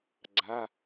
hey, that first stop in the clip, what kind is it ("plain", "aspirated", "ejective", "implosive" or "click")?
click